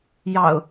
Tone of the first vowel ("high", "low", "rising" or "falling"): low